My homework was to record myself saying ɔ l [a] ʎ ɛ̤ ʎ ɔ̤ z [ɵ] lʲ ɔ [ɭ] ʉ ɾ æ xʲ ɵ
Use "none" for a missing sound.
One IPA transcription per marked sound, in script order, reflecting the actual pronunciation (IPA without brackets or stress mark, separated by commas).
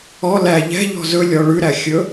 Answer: æ, ɵ, ɭ